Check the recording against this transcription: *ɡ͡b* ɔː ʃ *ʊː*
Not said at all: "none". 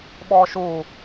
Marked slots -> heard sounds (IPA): ɓ, uː

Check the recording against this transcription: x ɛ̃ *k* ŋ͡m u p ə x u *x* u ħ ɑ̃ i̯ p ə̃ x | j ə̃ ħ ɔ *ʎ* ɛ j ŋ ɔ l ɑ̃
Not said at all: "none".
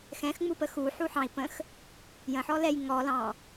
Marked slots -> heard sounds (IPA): x, ħ, l

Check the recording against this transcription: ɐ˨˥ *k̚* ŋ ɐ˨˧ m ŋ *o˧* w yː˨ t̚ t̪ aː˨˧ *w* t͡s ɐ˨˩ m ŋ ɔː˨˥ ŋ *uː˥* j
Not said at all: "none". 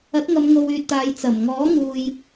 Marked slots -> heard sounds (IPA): t̚, o˨, j, uː˨

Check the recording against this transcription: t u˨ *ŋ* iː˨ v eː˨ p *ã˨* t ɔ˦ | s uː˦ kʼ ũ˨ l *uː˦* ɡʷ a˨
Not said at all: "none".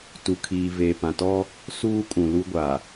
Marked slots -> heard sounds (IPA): kʰ, ã˨, u˦

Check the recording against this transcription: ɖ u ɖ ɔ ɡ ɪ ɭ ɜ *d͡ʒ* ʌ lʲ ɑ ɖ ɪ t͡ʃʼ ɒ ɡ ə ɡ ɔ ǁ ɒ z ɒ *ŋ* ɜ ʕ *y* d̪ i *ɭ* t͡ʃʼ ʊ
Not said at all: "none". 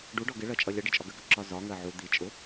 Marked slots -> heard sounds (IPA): t͡ʃʼ, ŋ, u, none

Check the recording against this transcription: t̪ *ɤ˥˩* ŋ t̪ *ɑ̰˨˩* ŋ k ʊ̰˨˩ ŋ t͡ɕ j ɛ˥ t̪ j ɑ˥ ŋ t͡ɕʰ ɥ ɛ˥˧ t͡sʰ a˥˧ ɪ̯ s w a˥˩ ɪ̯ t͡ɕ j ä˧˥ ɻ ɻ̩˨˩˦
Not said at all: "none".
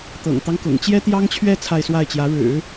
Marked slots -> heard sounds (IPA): ɤ̰˨˩, ɑ˦

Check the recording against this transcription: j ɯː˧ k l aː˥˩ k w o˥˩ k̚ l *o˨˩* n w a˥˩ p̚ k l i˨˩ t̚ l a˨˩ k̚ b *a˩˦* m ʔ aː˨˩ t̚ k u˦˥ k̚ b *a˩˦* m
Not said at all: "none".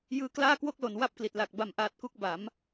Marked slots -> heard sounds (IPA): o˨˩, a˨˩, a˩˦

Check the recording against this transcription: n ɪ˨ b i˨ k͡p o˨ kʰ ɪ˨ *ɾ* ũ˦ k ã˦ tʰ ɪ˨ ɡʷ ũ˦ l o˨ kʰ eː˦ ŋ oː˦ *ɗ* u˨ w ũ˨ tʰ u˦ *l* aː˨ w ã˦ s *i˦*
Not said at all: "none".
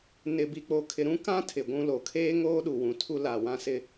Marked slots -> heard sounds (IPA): ɾ, ɗ, l, ɪ˦

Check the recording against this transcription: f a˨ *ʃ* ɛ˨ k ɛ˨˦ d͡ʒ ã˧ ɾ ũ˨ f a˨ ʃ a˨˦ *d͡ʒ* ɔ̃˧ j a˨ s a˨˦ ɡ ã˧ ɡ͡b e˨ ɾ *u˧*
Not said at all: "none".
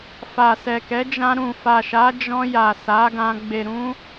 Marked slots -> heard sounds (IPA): s, d͡ʒ, ũ˧

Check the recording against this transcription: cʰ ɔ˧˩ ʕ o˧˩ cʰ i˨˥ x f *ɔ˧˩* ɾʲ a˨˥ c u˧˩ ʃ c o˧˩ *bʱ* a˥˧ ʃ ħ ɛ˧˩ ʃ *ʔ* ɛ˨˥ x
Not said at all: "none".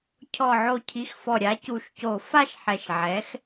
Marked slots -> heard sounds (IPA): ɔ˧˩, f, ʕ

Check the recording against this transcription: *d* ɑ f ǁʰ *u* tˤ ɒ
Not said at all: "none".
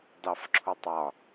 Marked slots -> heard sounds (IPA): d, u

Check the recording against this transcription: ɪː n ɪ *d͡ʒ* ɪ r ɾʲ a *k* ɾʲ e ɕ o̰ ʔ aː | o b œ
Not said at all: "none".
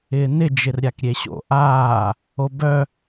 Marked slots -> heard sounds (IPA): d͡ʒ, k

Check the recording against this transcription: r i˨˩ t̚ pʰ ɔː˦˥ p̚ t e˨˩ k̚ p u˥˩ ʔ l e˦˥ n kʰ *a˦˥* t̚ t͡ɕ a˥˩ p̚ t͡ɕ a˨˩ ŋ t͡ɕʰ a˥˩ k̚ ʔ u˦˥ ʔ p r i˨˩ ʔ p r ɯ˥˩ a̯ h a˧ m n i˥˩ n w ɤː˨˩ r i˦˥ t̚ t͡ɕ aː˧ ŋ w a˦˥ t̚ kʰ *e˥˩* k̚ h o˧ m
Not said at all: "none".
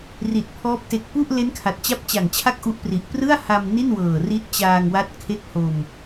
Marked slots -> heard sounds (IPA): a˨˩, e˥˩

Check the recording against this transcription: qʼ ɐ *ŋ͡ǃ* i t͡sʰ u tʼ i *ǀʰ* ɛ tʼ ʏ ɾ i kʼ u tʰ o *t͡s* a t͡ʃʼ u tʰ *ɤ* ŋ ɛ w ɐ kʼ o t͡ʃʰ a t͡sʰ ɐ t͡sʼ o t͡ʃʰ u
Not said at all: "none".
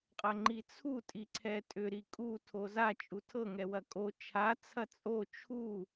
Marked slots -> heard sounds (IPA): ŋ͡ǃ, ǀʰ, z, ɤ

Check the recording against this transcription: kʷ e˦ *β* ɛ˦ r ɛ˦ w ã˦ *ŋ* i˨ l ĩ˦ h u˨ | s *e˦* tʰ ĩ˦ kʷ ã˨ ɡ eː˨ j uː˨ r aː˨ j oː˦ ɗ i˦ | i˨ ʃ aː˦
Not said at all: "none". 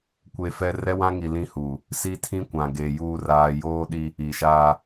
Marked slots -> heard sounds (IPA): f, ŋ, i˦

